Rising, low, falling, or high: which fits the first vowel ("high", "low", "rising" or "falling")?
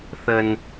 low